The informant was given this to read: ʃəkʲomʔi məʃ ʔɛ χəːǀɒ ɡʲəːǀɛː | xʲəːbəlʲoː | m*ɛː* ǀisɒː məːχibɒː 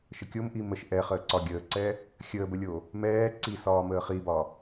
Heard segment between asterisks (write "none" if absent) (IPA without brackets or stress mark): ɛː